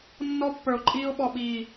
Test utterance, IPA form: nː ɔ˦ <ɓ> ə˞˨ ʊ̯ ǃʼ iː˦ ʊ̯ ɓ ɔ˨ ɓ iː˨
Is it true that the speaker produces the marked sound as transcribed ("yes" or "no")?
no